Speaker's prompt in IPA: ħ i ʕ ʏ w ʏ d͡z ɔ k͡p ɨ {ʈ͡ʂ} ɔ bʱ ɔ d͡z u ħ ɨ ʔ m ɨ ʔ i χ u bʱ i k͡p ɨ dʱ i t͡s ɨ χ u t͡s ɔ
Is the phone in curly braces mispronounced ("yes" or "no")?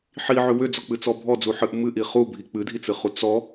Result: yes